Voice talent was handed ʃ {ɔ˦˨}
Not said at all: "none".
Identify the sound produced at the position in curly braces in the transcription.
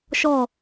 ɔ˦˨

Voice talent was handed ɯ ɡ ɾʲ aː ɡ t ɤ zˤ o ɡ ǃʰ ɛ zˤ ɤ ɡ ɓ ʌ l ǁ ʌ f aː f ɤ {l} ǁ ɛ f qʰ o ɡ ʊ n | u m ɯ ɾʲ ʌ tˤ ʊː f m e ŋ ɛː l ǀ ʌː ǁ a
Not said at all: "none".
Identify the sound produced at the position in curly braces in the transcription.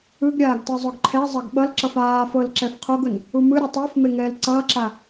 l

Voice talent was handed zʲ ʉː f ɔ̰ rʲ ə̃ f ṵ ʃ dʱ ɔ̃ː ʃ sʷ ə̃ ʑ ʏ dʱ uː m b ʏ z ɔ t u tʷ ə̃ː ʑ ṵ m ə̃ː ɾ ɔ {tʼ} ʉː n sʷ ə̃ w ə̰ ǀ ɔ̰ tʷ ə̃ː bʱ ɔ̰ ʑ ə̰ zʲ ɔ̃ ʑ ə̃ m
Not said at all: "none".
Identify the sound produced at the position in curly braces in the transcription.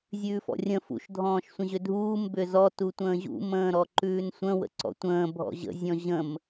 ǃ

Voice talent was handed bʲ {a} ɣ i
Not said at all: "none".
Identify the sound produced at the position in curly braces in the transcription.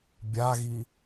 a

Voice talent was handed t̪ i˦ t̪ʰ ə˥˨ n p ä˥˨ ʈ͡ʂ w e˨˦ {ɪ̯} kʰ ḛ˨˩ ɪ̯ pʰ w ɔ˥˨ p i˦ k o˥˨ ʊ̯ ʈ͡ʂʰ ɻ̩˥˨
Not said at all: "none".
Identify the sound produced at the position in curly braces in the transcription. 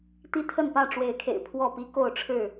ɪ̯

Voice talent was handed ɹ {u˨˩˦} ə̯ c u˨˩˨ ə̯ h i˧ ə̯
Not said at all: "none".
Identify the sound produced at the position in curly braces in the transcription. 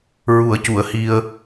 u˨˩˦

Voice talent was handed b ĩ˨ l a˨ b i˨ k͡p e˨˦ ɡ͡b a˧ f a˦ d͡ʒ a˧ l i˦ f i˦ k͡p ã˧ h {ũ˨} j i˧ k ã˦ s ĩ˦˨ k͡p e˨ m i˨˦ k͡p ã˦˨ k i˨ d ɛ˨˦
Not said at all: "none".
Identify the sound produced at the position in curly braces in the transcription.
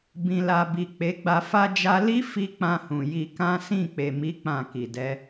ũ˨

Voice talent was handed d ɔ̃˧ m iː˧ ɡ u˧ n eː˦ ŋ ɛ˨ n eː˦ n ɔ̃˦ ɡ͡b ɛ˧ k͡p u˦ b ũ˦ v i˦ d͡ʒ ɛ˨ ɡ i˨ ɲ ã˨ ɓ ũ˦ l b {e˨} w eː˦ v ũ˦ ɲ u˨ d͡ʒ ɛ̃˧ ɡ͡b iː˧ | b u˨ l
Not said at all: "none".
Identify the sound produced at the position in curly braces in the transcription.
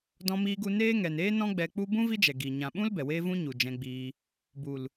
ɛ˨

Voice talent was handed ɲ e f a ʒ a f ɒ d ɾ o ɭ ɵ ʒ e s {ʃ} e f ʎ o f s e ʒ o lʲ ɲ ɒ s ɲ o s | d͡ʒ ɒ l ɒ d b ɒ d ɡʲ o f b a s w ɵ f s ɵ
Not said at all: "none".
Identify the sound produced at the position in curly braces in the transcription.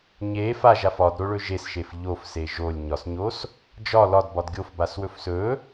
ʃ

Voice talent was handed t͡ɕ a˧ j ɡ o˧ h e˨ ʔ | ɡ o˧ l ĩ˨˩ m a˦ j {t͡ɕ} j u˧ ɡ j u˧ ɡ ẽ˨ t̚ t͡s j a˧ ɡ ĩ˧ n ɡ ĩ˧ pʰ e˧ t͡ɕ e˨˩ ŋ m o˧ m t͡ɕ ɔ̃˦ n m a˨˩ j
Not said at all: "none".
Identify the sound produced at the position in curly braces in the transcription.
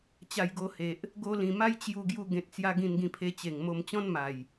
t͡ɕ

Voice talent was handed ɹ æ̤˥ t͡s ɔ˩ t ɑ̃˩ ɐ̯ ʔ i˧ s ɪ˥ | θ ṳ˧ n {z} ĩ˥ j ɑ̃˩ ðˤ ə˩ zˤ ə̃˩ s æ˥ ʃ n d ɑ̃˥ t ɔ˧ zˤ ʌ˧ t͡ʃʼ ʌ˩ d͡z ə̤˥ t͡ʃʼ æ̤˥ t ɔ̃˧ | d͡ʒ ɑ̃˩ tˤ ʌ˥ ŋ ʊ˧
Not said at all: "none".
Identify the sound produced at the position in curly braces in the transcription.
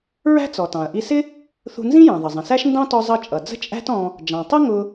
z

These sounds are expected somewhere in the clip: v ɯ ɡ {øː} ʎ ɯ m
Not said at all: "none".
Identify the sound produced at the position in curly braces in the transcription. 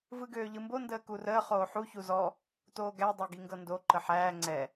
øː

